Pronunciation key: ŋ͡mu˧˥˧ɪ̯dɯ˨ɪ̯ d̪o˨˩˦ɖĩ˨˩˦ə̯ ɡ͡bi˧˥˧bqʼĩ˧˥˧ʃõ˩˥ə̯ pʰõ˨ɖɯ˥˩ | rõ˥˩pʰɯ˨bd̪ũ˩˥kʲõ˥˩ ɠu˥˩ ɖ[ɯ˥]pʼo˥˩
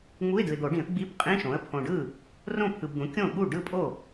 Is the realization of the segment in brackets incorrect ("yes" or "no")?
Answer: yes